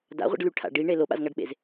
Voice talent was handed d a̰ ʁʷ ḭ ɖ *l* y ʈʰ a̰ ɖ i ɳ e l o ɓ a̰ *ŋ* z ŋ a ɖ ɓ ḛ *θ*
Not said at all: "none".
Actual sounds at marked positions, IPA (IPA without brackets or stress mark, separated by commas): l, none, z